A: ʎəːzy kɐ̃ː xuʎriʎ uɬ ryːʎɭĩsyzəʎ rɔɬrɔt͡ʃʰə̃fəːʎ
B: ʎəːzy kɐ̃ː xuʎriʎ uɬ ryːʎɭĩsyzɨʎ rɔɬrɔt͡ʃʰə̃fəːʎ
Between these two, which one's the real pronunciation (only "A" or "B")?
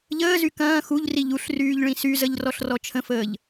A